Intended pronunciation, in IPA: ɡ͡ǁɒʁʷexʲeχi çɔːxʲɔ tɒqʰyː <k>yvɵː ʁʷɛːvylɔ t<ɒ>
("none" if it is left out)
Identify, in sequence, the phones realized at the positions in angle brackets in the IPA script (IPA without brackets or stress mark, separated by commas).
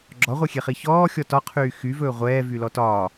x, ɒː